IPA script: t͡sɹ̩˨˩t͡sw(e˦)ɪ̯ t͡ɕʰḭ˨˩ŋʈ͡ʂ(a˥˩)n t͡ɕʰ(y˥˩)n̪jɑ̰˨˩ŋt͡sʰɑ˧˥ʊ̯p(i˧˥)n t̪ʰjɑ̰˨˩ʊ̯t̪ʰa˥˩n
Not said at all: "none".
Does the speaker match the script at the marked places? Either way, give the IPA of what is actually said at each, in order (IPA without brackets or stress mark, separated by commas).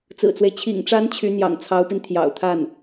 e˦, a˧˥, y˧˥, i˧